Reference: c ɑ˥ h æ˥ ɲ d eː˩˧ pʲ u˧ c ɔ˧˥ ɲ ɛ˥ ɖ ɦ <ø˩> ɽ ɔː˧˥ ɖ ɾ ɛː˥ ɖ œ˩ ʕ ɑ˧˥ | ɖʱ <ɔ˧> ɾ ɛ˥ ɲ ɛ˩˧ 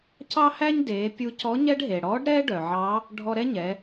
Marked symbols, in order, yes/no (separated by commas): no, yes